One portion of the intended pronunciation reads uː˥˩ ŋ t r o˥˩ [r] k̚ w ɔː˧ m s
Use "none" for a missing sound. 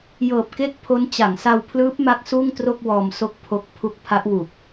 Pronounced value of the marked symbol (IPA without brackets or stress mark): none